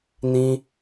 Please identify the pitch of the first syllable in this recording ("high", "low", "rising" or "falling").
high